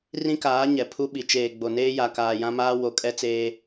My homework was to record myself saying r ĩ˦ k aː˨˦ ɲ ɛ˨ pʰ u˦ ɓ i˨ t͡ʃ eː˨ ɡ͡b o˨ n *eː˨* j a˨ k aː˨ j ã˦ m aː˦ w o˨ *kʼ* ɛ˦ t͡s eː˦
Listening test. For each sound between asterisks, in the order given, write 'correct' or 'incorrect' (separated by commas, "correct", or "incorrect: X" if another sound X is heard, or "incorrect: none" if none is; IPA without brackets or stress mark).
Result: incorrect: eː˦, correct